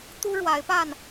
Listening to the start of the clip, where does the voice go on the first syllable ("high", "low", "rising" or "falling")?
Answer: high